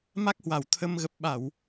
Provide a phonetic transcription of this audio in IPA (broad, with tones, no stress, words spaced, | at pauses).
ma˦˥k̚hwa˨˩w t̪ʰə˧m ɣə˨˩p̚ɓa˧˩˨w